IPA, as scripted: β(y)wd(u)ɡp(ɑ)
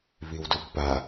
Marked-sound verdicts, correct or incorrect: incorrect: i, correct, incorrect: a

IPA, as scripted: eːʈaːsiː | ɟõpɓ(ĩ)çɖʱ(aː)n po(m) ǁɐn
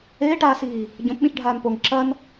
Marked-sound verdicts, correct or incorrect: correct, correct, incorrect: ŋ

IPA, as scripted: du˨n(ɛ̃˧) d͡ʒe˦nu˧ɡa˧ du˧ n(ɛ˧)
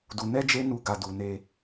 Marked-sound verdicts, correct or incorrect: incorrect: ɛ˧, incorrect: e˧

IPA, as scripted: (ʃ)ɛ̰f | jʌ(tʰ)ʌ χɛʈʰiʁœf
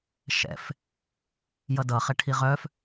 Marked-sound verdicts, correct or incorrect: correct, incorrect: d

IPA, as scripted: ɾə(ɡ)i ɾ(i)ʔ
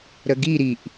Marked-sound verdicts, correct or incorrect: correct, correct

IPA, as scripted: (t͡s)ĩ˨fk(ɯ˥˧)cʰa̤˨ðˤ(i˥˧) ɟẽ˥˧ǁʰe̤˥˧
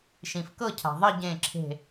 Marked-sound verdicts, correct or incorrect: incorrect: ʃ, incorrect: ɤ˥˧, correct

